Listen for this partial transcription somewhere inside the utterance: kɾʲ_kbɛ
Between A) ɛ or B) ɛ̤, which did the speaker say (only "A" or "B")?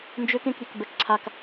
B